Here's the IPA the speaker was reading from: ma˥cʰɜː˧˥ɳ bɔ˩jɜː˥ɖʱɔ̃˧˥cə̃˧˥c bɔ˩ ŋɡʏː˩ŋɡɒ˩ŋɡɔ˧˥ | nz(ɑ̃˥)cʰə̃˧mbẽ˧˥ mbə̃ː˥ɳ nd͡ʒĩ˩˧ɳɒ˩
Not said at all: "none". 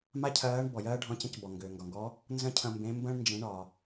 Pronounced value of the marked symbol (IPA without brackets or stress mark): ə̃˥